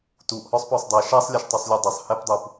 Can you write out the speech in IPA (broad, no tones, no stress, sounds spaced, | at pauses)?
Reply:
t u ʔ h ɔ sˤ p ɔ sˤ dˤ ɛ ʃ a sˤ lʲ a ʃ tˤ u sˤ lʲ u dˤ ʌ sˤ h ɛ p dˤ u p